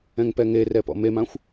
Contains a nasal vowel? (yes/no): yes